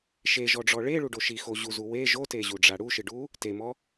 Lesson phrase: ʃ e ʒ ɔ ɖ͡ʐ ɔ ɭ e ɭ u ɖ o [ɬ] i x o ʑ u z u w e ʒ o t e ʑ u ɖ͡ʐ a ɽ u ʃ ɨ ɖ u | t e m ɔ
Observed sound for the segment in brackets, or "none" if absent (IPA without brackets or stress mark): ʃ